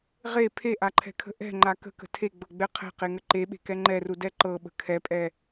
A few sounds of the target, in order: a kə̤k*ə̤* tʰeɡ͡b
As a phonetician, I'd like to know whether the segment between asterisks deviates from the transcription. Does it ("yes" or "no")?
no